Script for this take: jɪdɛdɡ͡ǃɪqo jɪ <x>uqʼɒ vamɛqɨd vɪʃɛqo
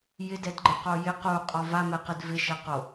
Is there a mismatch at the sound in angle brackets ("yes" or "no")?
yes